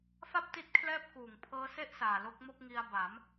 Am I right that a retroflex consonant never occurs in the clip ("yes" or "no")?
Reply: yes